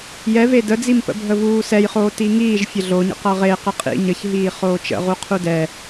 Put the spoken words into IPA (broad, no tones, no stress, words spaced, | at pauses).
jɛve dəd͡zimpə̰ bʱəvuːsɛjχoː tiŋiːʒ fʲəɮoɲə̰ qʌʁe qəqʼḭ ɲəçɦiː χoːt͡ʃə̰ʁu qʰudɛ